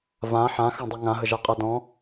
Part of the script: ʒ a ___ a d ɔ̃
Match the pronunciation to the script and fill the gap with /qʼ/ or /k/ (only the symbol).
qʼ